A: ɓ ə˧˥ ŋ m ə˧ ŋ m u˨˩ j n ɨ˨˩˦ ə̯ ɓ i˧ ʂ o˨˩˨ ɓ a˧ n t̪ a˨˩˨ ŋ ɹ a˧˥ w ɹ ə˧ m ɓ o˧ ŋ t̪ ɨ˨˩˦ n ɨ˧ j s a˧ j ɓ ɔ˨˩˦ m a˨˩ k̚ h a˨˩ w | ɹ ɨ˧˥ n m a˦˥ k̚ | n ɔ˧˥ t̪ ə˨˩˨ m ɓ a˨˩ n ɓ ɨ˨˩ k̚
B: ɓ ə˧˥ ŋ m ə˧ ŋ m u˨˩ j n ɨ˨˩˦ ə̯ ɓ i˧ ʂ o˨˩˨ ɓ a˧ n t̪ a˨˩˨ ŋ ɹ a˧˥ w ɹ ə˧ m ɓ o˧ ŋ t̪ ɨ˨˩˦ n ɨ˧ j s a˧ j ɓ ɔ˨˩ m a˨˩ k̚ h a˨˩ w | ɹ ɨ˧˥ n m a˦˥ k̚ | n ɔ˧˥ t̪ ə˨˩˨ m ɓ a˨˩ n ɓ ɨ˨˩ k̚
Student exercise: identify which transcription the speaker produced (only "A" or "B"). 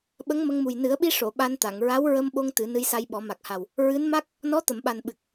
A